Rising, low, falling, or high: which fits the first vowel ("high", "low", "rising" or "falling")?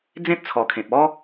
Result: high